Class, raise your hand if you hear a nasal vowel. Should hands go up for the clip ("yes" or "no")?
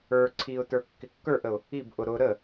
no